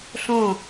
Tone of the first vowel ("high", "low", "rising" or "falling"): falling